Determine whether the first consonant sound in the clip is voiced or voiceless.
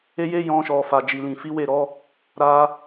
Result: voiced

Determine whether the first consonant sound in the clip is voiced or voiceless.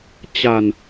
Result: voiceless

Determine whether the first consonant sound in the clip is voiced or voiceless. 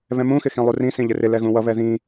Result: voiced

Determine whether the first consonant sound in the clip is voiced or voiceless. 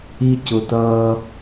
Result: voiceless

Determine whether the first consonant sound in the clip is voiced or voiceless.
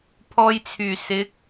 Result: voiceless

